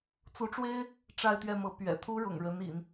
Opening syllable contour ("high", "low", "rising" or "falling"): rising